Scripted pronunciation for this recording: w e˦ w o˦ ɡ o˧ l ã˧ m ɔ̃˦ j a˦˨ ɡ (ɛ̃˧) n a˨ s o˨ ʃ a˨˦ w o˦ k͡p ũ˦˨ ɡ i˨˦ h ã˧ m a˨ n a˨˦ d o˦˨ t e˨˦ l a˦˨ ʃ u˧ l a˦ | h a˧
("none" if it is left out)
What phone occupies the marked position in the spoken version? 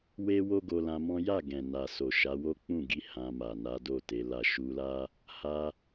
ɛ̃˨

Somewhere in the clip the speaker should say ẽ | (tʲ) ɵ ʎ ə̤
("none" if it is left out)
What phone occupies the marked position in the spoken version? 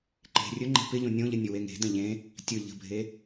tʲ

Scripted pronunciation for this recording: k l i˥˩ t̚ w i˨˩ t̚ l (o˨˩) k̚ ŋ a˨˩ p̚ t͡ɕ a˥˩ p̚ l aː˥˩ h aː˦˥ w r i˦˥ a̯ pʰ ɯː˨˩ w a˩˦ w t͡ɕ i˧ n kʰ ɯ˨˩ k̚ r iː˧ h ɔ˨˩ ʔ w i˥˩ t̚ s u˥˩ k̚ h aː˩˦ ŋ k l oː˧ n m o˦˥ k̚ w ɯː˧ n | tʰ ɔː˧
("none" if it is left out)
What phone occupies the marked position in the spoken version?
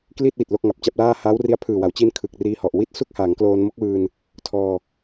o˥˩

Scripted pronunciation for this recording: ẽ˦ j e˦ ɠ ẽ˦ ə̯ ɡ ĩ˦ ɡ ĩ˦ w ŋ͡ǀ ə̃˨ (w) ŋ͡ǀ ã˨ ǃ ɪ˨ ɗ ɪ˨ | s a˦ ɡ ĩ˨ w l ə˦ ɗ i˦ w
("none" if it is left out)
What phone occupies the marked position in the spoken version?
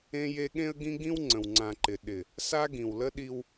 w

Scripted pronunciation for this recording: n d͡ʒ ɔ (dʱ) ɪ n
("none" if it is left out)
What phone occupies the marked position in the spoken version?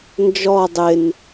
dˤ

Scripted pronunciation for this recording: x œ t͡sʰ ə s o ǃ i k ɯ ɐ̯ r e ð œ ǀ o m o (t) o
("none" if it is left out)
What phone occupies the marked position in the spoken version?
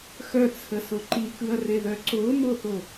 θ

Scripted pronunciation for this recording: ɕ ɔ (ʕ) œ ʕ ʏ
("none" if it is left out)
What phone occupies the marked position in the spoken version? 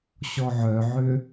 ʕ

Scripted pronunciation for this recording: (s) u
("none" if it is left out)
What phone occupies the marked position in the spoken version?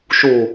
ʃ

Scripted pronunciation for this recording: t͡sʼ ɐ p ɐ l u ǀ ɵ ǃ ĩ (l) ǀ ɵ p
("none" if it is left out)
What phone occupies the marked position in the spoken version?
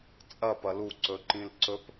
l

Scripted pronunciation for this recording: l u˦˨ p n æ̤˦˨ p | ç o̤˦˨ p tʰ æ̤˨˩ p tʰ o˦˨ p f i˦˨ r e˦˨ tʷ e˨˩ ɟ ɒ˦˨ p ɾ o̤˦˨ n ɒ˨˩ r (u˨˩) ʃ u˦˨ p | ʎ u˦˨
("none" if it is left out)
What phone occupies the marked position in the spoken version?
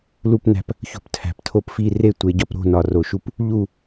o˨˩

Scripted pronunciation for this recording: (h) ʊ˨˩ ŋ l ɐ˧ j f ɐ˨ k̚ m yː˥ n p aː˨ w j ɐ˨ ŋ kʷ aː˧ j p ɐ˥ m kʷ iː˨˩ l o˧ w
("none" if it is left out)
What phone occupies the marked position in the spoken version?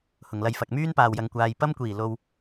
h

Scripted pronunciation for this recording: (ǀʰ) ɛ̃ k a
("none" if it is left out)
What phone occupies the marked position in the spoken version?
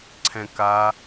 ǀʰ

